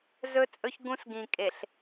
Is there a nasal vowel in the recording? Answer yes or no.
yes